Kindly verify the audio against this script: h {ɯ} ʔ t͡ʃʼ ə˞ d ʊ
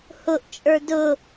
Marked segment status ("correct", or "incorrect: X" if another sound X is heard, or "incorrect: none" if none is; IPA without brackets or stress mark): incorrect: ʊ